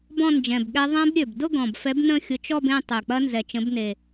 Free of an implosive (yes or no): no